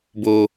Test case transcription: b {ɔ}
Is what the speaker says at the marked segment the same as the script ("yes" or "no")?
no